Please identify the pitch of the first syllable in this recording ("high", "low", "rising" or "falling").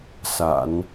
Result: low